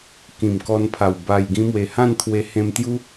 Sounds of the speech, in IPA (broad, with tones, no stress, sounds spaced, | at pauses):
k ĩ˨˩ m k ɔ˧ n pʰ a˨˩ w b a˨˩ j ɡ ĩ˧ m w e˨˩ h ã˥˧ n t̪ʰ w e˧ h ẽ˧ m t̪ j u˦